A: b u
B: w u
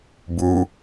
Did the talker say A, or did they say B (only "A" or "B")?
A